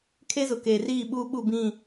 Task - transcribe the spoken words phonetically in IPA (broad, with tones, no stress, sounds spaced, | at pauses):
kʰ e˦ z ʊ˨ k eː˨ r iː˦˨ ɓ uː˦ ɓ u˦˨ b ĩ˦˨